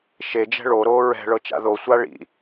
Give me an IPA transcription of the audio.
ʃ e d͡ʒ ɛ̤ ɭ o ɾ oː ɹ ɛ̤ ɭ ɤ t͡ʃ a̰ ð o sʷ a ɭ ḭ

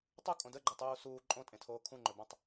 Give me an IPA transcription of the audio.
tˤ u kʼ õ d ə ɡ͡ǃ ə tˤ uː s uː ǃʼ õ tʼ ẽ tʰ oː kʰ ũ ŋ͡ǃ ɵ b ã tˤ

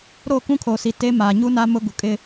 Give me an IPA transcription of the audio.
ɾ o˦˨ k ũ˦ kʰ o˨ s i˨ t e˦ m a˨ ɲ u˦ n a˦ m ʊ˦ ɡ u˨ kʼ ɪ˦

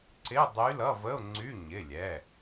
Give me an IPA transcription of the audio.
ǀ ɪ˧˥˧ ʊ̯ dˤ y˧˥ l ʌ˧˥˧ v ə˧˥˧ ʊ̯ ŋ͡ǀ y˧˥˧ ɲ ɪ˩˧˩ lʲ ɛ˩˧˩

